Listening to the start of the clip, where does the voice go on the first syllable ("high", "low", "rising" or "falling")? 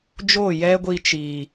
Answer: falling